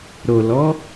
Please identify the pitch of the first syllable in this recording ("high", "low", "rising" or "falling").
low